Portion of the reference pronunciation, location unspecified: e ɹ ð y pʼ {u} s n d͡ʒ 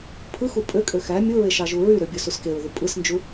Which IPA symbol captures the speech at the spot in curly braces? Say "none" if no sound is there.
ɯ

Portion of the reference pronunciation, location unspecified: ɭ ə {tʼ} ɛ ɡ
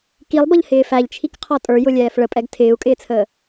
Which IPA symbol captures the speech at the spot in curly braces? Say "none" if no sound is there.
pʼ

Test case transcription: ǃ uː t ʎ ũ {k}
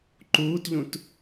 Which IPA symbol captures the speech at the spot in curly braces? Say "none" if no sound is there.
t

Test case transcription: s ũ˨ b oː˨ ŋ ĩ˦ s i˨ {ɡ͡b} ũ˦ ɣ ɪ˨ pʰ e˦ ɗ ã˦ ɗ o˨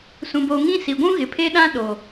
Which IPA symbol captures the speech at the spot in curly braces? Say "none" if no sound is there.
ɡʷ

